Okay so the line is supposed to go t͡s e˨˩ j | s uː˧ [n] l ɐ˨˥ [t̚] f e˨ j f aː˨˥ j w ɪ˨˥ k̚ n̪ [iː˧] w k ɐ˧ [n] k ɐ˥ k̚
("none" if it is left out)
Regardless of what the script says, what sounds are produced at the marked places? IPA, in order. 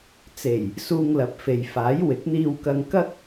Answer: ŋ, p̚, iː˧, ŋ

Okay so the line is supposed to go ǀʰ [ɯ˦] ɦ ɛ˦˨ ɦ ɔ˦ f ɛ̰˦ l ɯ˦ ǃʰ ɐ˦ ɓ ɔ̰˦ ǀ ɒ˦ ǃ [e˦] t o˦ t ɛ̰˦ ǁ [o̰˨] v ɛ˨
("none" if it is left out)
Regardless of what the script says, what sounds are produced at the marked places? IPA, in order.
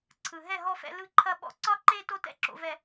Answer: ɯ˨, e˦, o̰˨

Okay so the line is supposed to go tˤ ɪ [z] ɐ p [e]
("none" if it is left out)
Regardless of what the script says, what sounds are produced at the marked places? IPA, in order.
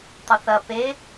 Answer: θ, e

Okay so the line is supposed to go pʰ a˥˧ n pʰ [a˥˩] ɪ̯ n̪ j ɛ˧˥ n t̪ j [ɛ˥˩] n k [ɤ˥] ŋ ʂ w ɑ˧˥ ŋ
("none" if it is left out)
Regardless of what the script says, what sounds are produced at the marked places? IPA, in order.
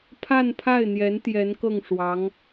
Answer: a˥˩, ɛ˧˥, ɤ˥˩

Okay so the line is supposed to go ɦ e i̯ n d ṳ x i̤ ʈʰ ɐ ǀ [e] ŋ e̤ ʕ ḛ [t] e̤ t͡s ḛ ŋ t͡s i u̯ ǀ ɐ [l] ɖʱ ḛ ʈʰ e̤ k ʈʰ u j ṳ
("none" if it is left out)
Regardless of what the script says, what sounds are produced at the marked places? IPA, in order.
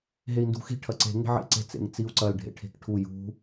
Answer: e̤, ǀ, l

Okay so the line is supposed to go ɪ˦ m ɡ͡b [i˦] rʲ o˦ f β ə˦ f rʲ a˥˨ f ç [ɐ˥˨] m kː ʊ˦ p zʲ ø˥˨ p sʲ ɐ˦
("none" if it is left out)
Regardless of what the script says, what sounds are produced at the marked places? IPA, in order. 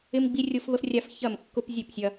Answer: i˦, ɐ˥˨

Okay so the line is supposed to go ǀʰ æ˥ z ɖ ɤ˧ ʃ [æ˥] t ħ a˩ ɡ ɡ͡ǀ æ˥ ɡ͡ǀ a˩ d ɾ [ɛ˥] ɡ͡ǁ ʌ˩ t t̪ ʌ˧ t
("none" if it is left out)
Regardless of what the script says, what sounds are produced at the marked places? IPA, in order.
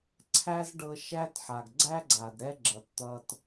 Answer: æ˥, ɛ˥

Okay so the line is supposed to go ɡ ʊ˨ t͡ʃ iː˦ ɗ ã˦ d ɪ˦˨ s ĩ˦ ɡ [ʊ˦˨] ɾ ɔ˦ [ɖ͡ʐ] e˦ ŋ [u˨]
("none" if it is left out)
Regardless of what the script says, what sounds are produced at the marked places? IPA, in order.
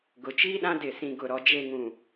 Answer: ʊ˦˨, d͡ʒ, ũ˨

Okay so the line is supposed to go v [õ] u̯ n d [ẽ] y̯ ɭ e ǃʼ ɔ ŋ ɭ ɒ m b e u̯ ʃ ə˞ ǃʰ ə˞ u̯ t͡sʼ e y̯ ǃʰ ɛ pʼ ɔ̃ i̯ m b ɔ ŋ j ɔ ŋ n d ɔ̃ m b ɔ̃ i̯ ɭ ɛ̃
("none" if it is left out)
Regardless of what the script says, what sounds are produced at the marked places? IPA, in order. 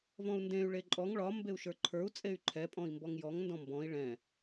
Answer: ɔ̃, ẽ

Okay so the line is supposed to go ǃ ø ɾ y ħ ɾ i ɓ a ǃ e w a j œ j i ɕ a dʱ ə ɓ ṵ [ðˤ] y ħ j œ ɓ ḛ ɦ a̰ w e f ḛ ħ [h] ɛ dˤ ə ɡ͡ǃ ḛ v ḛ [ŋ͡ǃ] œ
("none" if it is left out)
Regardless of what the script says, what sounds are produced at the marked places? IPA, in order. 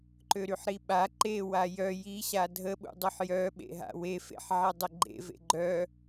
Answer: dˤ, ʕ, ɡ͡ǃ

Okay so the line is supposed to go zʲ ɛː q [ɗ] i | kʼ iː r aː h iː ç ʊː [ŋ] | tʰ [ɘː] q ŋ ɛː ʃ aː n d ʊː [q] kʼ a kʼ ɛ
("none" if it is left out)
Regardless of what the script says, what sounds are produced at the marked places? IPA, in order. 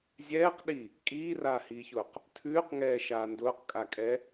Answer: ɗ, q, ʉː, q

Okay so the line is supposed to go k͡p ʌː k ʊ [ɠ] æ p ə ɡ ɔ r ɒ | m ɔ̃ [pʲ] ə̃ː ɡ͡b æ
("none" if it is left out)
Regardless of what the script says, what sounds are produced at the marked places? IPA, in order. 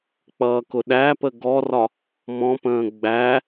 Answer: ɗ, p

